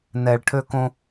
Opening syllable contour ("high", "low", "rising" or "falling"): low